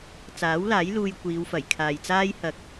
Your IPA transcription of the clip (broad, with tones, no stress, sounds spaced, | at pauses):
t͡s aː˨˥ w l aː˨˥ j l uː˧ j kʷ iː˨˧ w f ɐ˨˩ j kʰ aː˨ j t͡s aː˥ j h ɐ˨ k̚